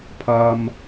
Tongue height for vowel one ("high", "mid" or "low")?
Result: low